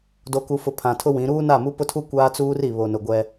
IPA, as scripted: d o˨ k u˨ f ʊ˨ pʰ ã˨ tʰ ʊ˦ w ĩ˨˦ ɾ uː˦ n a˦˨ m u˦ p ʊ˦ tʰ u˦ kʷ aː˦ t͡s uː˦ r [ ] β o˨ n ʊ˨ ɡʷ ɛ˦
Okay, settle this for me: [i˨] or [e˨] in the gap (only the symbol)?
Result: i˨